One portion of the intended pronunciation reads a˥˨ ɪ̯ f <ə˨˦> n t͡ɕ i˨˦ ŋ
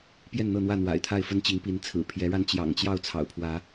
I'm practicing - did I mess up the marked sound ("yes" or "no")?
yes